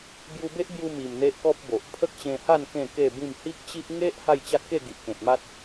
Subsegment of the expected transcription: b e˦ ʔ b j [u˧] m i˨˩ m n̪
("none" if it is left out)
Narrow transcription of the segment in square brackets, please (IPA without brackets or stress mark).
u˧